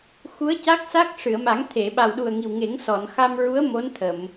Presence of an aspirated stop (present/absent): present